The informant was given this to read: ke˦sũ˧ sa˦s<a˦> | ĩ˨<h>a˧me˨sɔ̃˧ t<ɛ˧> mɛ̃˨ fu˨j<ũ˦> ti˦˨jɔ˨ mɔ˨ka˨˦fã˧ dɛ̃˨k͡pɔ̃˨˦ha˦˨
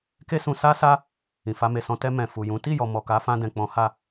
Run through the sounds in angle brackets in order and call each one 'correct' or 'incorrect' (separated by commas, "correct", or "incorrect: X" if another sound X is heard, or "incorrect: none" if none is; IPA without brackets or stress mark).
correct, incorrect: f, correct, incorrect: ũ˨˦